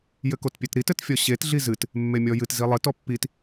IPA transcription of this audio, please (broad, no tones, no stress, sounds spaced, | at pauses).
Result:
j ɘ k o t pʲ e t ɾ i t ɘ t fʲ ɔ ɕ e t ɮ i z ɨ t | mː e mʲ ɔ j ɨ t z i lˠ ɘ t ɔ pː i t